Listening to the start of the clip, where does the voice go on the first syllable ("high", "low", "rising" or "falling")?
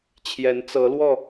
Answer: rising